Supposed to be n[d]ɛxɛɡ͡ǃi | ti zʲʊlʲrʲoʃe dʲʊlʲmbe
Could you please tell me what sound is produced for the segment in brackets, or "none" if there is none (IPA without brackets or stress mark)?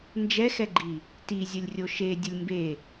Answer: d͡ʒ